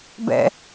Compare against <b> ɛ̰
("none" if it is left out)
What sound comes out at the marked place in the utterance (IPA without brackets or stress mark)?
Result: b